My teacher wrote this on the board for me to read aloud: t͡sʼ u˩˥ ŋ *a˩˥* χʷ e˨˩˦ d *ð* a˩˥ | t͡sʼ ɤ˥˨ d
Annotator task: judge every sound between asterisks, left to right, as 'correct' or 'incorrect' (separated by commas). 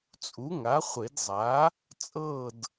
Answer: correct, incorrect